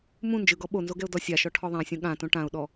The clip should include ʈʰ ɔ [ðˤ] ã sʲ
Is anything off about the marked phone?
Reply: no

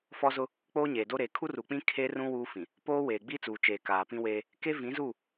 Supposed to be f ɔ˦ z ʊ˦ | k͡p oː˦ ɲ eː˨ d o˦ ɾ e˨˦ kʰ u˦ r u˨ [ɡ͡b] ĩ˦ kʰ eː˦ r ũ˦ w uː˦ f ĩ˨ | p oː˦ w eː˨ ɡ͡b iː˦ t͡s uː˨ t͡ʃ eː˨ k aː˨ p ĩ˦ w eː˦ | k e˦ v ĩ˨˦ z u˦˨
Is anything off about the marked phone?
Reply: yes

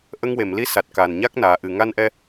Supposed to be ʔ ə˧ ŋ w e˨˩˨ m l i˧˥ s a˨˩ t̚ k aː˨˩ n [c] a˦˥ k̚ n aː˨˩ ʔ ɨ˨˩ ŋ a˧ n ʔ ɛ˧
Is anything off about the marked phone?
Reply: yes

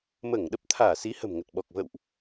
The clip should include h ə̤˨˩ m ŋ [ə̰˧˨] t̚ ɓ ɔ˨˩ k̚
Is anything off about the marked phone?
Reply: yes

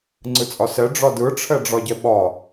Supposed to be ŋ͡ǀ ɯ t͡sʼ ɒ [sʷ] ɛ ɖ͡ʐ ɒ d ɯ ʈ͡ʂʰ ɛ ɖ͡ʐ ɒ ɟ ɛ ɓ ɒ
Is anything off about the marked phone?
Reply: yes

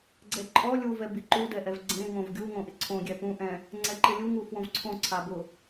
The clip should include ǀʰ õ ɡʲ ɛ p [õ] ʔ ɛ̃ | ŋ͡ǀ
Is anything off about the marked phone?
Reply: yes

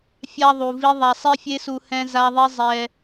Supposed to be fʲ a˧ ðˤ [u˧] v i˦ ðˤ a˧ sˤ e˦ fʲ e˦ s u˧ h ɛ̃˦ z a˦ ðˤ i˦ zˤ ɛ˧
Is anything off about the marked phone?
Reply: no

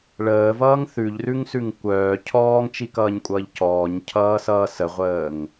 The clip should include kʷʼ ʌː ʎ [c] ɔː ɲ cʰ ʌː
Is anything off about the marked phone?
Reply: no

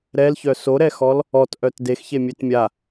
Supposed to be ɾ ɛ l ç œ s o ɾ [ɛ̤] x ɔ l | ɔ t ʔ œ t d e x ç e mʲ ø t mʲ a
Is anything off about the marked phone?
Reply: yes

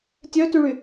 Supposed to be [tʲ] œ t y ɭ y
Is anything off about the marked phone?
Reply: no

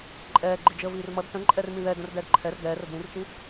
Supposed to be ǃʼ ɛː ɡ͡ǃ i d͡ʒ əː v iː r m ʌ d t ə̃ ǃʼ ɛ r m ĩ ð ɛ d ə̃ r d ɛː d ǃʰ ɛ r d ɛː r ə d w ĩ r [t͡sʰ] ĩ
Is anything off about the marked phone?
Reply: yes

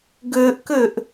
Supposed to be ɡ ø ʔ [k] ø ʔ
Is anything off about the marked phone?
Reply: no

